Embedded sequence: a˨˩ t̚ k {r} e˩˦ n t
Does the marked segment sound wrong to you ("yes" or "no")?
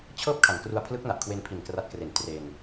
no